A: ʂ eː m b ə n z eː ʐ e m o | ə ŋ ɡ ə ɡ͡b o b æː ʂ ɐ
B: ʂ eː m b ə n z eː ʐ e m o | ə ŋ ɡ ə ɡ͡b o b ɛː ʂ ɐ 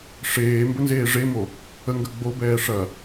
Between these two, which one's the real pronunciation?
B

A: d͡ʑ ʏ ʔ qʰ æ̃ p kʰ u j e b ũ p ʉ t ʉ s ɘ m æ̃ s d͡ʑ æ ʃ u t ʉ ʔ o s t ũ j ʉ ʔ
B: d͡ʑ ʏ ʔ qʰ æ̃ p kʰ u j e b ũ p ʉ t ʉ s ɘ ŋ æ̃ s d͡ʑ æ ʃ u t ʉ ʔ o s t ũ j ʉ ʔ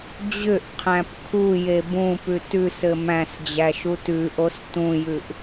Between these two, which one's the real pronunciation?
A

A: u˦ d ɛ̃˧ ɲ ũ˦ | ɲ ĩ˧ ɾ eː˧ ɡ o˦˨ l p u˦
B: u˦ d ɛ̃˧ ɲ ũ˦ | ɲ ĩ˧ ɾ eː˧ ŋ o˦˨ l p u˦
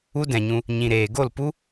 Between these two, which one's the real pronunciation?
A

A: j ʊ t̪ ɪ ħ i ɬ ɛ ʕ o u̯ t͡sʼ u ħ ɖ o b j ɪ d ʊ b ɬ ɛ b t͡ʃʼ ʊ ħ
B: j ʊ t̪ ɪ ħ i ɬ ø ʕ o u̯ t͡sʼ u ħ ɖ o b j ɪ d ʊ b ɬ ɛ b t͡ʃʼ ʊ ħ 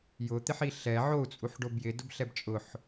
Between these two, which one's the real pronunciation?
A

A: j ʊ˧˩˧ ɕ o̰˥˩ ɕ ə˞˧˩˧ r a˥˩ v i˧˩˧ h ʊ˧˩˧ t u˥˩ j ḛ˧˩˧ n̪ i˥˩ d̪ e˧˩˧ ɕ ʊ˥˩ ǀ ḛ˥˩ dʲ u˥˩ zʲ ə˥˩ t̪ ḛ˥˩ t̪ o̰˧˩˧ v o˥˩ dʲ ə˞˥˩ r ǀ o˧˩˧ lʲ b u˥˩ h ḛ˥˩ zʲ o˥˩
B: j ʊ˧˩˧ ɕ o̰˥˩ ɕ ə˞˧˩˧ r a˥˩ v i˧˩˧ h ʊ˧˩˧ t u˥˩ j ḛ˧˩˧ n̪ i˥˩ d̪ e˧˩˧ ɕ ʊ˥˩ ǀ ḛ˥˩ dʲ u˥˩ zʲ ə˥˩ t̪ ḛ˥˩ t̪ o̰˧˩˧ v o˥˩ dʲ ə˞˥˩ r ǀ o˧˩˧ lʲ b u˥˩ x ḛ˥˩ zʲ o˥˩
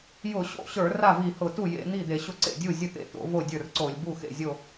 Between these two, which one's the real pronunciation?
B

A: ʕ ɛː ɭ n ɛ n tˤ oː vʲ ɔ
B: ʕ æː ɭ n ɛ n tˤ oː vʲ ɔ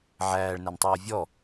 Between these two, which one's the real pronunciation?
B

